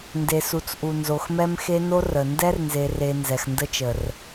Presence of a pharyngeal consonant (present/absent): absent